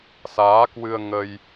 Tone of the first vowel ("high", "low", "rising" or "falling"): rising